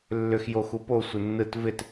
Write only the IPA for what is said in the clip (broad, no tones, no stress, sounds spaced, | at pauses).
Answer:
lː ʏ x j o x u p o sʷ ɪ nː ɯ t v ɪ t